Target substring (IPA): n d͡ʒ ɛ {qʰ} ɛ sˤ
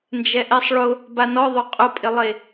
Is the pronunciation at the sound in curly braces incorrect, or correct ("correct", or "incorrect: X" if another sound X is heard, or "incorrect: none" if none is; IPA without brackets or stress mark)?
incorrect: ʔ